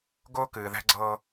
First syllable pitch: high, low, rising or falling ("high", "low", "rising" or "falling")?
high